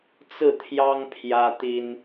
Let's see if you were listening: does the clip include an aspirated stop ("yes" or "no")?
yes